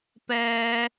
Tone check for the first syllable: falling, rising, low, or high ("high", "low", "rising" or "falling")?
high